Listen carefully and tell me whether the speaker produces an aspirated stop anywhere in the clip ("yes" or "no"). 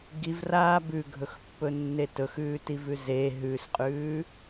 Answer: no